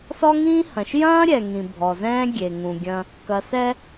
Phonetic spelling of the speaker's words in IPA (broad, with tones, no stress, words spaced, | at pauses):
sɔ˦ŋĩː˦hɐ̃˨ʃ jɐ̃ː˦ ɾʲɛ˨ŋĩ˨ bʱɔ˨zɛ̃ː˦ ɡʲe˨ŋũ˨ɡʲɐ̃˦ | kɐ˨sɛ˦